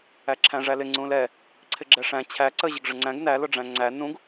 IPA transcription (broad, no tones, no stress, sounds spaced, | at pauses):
æ ǁʰ æ̃ ʐ æ l ɪ ŋ͡ǀ ũ l ɛ | ǀʰ ɪ ɡ͡ǁ ɛ ʂ æ̃ t͡ɕʰ æ ǀ ə ʑ ə ɡ ʐ ə ŋ͡ǀ æ̃ ɡ n æ l ʊ ɖ͡ʐ æ̃ ŋ͡ǀ æ n ũ ɡ